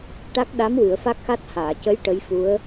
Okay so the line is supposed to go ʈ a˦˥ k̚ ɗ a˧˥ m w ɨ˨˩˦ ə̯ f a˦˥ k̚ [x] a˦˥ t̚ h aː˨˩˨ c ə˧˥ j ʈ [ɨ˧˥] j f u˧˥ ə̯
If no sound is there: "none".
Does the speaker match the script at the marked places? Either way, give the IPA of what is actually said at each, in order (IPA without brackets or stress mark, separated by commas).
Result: x, ə˧˥